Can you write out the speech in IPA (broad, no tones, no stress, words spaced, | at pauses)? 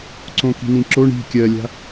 ǀõki̤nĩǁo ɳi̤ kʲɜlʲa̤